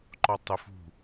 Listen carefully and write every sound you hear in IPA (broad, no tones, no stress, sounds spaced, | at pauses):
ǃ ɔ tˤ ʊ f ṳ